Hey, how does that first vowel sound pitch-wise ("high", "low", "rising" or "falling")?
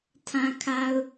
low